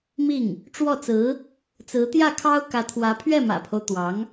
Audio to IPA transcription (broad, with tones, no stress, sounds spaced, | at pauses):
m i˥˩ ŋ | ʈ͡ʂ w ɔ˥˩ t͡s ɹ̩˧˥ | t͡s ɹ̩˧˥ t̪ j ä˥˩ kʰ ɑ˥ ʊ̯ k ä˧˥ t̪ʰ w ä˧˥ pʰ ɥ ɛ˥˩ m ä̰˨˩ pʰ o˦ ʊ̯ t̪ w ɑ˧˥ ŋ